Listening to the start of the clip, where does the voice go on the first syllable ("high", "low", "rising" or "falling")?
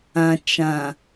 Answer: low